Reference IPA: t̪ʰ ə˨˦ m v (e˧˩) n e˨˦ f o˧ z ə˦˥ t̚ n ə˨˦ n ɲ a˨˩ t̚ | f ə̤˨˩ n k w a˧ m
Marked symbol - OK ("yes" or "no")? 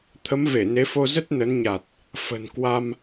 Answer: yes